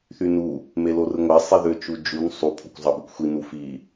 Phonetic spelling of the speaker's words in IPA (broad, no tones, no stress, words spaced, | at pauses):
θynu | melorɯŋʷæ sˤiðøt͡ʃud͡ʒun sˤu pʰokʷzˤɑbukʷxʷi nufi